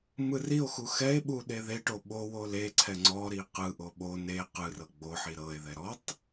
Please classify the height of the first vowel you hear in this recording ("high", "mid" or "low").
high